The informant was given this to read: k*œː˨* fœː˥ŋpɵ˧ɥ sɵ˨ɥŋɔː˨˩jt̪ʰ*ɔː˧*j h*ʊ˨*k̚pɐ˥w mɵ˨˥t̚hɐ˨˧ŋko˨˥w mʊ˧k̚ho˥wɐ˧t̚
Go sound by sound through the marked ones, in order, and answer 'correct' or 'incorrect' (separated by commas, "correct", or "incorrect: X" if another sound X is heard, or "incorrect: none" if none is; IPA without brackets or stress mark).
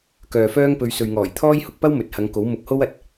correct, incorrect: ɔː˥, incorrect: ʊ˧